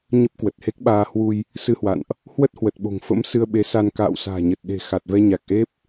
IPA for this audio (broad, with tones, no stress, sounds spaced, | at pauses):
ɲ ə˦˥ p̚ k w ə˨˩ t̚ h e˦˥ k̚ ɓ aː˧ h w u˧ j | s ɨ˧ h w a̰˧˨ n ʔ | h w ə˦˥ t̚ h w ə˨˩ t̚ ɓ o̤˨˩ ŋ f ə̰˧˥ m s ɨ˧ ə̯ ɓ e˨˦ s a˧ n k a̰ː˧˨ w s a̤ː˨˩ ɲ ə˨˩ t̚ ɗ e̤˨˩ x a˨˩ t̚ v ɛ˧ ɲ a˨˩ k̚ ʔ e˦˥ p̚